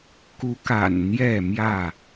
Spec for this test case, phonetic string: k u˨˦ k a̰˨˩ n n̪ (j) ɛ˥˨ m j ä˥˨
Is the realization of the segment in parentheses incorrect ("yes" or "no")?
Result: no